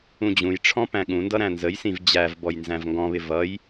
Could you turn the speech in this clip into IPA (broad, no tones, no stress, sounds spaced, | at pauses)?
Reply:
ũ d͡ʑ ũ j ʈ͡ʂʰ ɔ̃ p æ̃ ɠ ũ n d ʌ ɾ æ̃ n z ə j s ĩ v d͡ʑ æ v b ɔ j n z æ̃ v ŋ ɡ ɔ̃ β ɪ v ʌ j